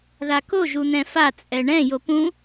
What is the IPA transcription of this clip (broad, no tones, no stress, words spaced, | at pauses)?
ðako ʒun̪ɛ̃fa t͡sʼɛɳɛ̃ jopũ